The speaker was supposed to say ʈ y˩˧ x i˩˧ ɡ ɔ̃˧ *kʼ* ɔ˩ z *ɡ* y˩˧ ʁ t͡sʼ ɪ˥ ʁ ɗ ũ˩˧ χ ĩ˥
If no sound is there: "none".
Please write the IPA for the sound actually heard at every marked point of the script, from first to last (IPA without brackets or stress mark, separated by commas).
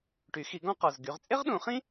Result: q, ɡ